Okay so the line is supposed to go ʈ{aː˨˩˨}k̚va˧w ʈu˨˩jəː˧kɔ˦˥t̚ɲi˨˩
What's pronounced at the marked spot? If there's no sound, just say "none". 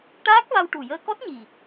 aː˦˥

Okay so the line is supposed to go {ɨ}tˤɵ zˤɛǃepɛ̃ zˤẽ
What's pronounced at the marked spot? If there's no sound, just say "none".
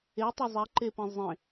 e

